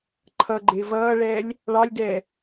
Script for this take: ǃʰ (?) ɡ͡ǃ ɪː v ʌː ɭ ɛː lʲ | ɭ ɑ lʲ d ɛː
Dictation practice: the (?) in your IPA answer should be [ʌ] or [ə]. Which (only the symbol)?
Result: ʌ